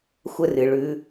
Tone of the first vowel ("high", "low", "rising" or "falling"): high